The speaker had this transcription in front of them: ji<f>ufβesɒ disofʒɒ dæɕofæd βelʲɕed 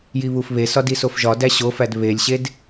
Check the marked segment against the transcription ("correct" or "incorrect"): incorrect